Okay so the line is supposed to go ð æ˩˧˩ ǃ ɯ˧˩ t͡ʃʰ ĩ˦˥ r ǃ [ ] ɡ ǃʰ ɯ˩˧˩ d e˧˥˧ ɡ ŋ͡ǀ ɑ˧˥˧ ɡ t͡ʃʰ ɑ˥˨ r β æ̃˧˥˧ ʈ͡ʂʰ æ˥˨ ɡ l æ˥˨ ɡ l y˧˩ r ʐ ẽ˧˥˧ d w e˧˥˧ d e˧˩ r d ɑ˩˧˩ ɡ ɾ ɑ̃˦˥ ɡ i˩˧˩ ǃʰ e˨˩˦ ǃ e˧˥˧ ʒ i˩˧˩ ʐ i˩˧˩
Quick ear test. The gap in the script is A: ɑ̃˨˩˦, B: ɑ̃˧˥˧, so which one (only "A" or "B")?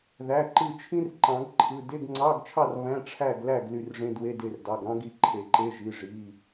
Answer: A